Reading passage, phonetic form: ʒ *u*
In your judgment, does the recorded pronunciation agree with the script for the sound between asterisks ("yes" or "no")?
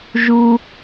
yes